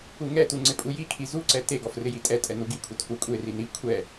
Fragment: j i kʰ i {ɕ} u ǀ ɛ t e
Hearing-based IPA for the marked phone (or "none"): z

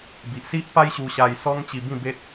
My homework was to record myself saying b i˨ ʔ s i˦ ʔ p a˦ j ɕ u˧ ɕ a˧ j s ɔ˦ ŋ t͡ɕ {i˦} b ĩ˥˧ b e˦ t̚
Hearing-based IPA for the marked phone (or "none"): i˧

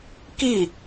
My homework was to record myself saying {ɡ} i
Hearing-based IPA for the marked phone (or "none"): k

